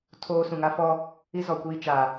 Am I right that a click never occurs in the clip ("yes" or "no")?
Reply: yes